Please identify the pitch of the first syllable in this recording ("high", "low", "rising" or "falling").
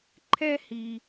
high